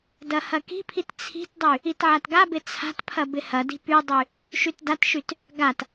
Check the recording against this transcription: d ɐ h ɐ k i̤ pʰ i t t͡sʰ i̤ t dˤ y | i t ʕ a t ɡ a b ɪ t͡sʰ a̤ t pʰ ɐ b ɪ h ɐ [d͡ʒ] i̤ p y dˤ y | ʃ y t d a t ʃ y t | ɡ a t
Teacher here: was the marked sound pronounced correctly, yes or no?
no